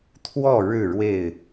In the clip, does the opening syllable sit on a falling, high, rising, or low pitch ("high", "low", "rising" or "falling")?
falling